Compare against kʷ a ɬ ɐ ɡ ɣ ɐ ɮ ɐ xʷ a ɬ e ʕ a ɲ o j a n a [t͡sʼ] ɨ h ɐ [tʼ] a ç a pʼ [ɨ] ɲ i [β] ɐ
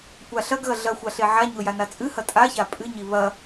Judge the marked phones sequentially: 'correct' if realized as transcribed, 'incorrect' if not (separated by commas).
correct, correct, correct, correct